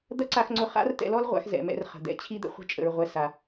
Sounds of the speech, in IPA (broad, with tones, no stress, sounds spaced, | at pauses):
d̪ ɐ˦ ǀ a˧ x ŋ͡ǀ ʊ˧ χ a̰˦ r t ɛ̰˧ l ɔ˦ l ʁʷ a̰˧ x z ɛ̰˨ m ɛ̰˧ r χ ə̤˨ d̪ ɛ̰˧ t͡ɕʰ i˦ d̪ ə̰˧ χʷ ə̤˧ t͡ʃʼ ə̰˨ ɹ ʁʷ ɛ˨ s a˨